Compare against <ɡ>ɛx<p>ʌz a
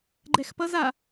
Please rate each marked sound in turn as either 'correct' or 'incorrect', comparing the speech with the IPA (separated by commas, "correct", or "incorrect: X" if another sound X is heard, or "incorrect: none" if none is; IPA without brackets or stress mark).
incorrect: ɡ͡ǃ, correct